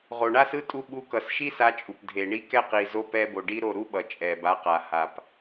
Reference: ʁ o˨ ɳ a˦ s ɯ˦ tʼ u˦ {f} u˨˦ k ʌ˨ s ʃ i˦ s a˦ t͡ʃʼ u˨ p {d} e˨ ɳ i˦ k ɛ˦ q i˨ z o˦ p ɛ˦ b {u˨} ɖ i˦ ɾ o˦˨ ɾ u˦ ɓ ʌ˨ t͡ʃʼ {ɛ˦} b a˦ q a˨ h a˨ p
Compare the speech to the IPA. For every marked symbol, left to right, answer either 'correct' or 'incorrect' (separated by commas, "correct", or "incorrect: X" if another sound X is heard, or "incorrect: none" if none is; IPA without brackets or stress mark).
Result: incorrect: ɓ, incorrect: dʱ, incorrect: o˨, incorrect: ɛ˨